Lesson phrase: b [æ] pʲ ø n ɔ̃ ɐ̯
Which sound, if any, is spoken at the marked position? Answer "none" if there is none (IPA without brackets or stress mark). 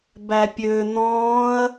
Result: æ